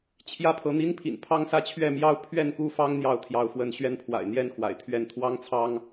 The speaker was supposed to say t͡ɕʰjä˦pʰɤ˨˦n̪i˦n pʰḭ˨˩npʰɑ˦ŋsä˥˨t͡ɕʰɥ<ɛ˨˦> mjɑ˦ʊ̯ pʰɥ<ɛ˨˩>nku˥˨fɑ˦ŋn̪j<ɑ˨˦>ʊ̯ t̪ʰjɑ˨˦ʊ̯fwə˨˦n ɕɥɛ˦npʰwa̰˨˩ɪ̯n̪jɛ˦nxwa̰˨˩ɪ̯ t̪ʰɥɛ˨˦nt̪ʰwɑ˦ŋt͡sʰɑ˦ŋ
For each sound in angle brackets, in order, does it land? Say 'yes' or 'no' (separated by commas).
no, no, yes